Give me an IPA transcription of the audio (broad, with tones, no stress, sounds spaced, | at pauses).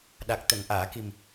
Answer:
ɗ a˨˩ k̚ t̪ ə˨˩˨ ŋ ʔ aː˨˩˨ k i˨˩ m